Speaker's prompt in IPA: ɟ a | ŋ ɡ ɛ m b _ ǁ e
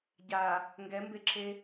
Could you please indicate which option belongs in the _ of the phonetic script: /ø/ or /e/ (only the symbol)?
e